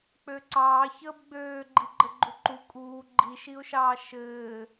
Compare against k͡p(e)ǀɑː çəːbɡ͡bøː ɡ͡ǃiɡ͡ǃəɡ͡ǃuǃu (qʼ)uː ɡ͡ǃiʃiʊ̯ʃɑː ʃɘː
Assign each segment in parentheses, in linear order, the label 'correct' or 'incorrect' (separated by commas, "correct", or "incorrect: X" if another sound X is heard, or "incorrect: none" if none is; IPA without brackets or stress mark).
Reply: incorrect: ø, incorrect: kʼ